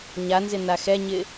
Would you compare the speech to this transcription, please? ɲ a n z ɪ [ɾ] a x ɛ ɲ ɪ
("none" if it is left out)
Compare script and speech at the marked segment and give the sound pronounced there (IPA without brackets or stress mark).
n